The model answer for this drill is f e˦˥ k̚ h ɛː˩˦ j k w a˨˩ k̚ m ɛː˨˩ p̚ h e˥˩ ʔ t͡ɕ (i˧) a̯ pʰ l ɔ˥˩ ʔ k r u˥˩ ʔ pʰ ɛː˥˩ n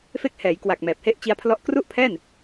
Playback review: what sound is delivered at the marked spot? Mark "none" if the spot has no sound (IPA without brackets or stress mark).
i˦˥